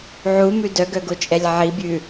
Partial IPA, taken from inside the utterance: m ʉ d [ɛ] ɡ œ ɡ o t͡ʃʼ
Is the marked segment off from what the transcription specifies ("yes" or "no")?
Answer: yes